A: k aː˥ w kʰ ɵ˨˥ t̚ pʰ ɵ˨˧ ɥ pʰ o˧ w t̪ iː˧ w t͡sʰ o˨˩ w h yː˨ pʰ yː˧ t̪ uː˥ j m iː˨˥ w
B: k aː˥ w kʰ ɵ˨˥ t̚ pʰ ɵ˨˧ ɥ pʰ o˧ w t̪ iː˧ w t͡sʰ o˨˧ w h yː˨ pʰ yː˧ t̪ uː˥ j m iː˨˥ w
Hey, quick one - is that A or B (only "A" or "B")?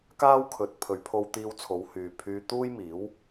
B